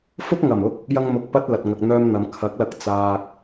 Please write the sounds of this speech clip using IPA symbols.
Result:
fʊ˥k̚ŋɐ˨˩m ʊ˥k̚ | jɐ˧ŋ mʊ˨k̚pɐ˧t̚ lɐ˨t̚ŋɐ˨k̚n̪œː˧mn̪ɐ˨m kʰɐ˨˥k̚lɐ˧k̚ t͡saː˧k̚

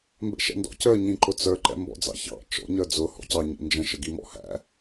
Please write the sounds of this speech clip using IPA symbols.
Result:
mbɛ̰ʃɛ̰ndɔ̰cə˞ ɲĩǃʊt͡sə˞ ǃɛ̰mbɔ̰d͡zɑ̰çɑ̰ t͡ʃɔ̰ ɲə˞d͡zʊ hɔ̰cɑ ɲḭnd͡ʒə̃ ʃəɡimɔ̰hæ̰

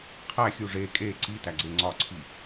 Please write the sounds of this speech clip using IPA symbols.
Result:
qʰæxʲu ʐe kʼe ǀitæɡ͡ǀe ŋ͡ǀɒǀʰi

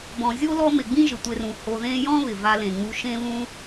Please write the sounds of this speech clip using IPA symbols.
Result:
bɔ̃˩zʲo˥ lɔ˦mɪ˩ɡ͡bĩ˥ ʒɪ˩tʷe˨rũ˩ ho˨ðẽ˦ jɔ̃˥ βɪ˩va˨lẽ˩ŋ͡mu˨ ʃẽ˦βũ˦

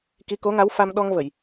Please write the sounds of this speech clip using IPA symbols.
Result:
ki˧˥ko˧˥ŋa˧˥w fa˧mɗɔ˧ŋvə˨˩˨j

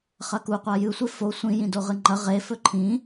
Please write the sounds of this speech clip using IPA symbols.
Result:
χɐkuqʷa jɨsʷe fo sʷĩ jĩdoʁɨŋ͡ǃɐ ʁe fɵǃʰĩ

